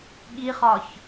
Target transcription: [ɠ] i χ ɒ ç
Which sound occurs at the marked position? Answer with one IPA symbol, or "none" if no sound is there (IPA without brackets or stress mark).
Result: ɠ